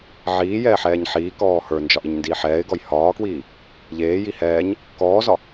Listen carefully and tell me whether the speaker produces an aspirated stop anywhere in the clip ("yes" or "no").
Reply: no